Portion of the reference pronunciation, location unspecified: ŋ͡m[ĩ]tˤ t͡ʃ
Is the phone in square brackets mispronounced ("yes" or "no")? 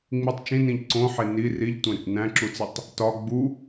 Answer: yes